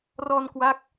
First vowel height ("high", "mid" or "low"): mid